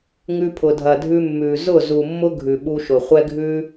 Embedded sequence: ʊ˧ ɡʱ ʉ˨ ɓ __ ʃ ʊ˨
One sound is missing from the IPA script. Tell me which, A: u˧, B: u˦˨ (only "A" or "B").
A